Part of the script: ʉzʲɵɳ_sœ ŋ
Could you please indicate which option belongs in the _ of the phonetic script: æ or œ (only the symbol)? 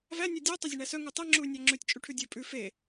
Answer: æ